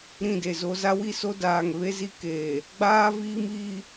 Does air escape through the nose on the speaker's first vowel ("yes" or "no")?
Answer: yes